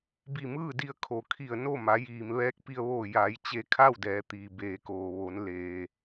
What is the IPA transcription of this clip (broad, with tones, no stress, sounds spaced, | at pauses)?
b i˧˩ m ɯː˥˨ d i˧ ə̯ kʰ o˩ kʰ i˧˩ ə̯ n o˥˨ m a˩˧ j iː˩ m ʋ ɛː˧˥ k̚ p i˧ ə̯ ʋ oː˧˩ j a˩˧ j t͡ɕ e˧ kʰ a˥˨ w d ɛː˩˧ t̪ iː˩ b eː˩ k oː˩ ʋ o˩˧ n l eː˩